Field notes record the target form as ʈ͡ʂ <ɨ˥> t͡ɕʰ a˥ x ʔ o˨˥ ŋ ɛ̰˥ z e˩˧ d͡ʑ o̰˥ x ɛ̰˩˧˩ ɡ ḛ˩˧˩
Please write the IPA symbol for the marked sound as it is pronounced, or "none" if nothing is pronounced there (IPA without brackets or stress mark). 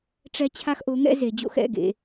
ɛ˥